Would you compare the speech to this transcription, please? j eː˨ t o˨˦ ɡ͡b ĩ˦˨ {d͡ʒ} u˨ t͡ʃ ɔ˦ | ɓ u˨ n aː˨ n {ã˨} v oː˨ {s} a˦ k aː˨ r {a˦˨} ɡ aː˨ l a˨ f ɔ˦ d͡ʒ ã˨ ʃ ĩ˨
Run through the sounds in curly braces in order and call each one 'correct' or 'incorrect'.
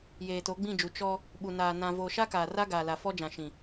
correct, correct, incorrect: ʃ, incorrect: a˦

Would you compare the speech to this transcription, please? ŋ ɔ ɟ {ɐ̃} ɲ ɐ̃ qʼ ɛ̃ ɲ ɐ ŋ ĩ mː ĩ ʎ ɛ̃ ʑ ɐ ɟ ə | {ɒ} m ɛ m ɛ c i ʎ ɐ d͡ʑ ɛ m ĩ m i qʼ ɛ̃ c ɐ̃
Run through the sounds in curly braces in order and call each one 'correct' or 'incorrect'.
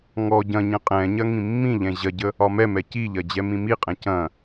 correct, correct

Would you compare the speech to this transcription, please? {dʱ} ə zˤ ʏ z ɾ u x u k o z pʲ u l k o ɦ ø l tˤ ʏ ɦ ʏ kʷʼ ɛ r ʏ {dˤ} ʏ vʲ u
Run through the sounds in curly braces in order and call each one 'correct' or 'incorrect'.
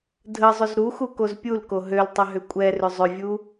correct, incorrect: zˤ

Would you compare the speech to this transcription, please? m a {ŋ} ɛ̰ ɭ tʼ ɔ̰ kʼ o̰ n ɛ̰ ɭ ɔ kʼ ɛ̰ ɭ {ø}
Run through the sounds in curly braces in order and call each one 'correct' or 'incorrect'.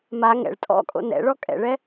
correct, incorrect: ɛ

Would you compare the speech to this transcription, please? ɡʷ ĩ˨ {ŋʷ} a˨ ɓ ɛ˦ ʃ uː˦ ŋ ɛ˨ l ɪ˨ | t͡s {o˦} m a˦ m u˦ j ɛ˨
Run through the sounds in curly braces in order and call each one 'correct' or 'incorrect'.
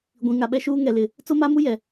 incorrect: ŋ, correct

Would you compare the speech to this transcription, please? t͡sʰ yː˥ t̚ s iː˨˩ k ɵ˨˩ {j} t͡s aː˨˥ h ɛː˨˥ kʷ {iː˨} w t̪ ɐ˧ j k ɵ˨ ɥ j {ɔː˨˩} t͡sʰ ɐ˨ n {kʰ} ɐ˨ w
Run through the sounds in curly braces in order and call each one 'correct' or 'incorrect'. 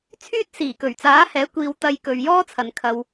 incorrect: ɥ, correct, incorrect: ɔː˥, correct

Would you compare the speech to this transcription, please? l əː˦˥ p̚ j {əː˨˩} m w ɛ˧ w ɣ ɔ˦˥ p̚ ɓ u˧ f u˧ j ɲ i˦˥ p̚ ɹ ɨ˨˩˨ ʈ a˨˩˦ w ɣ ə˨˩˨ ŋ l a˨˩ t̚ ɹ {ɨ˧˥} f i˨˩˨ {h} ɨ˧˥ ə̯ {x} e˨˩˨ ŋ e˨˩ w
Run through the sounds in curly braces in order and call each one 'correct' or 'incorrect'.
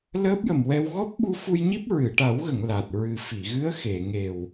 incorrect: ə˨˩, incorrect: ɨ˨˩, incorrect: ɣ, correct

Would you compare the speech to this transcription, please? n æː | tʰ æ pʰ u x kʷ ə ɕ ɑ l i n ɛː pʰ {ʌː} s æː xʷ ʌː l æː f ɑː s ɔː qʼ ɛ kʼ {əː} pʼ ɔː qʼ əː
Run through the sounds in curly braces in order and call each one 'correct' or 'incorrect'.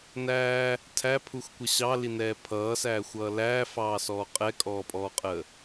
correct, incorrect: ɔː

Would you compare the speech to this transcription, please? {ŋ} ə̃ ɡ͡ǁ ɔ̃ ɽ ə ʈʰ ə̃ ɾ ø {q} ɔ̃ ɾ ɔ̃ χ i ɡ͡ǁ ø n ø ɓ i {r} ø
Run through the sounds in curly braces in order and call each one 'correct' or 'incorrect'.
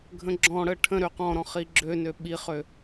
incorrect: ɡʱ, correct, incorrect: χ

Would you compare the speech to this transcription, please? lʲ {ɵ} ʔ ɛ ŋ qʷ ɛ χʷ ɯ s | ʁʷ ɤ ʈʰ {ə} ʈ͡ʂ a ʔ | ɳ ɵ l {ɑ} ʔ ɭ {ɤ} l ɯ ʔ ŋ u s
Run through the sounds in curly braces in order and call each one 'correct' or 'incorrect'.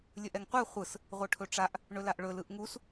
correct, incorrect: ɵ, incorrect: a, incorrect: ɵ

